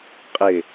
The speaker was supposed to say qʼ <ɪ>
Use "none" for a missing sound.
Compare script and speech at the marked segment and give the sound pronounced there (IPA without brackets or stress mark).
ɪ